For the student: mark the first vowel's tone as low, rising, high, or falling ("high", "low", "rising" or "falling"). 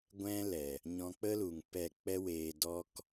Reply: high